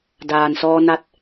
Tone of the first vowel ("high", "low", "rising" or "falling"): low